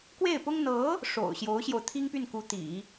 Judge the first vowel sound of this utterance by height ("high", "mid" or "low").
mid